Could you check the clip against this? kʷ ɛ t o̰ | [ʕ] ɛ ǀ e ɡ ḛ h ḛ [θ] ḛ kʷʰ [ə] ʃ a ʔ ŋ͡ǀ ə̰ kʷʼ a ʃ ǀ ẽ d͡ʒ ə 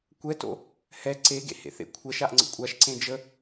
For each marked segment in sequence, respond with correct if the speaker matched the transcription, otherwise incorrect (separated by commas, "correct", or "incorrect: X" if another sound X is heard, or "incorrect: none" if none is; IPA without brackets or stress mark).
incorrect: h, correct, incorrect: ɛ